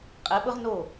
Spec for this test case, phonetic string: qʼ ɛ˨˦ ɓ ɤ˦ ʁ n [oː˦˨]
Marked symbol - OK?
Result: no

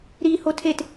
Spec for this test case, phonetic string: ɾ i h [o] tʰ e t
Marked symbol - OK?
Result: yes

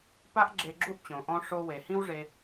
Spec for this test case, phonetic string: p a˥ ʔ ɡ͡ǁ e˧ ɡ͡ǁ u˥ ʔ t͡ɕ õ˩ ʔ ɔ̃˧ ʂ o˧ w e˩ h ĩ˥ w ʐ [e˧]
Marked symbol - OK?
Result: yes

